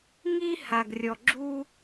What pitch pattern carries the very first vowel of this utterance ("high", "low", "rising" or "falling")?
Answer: high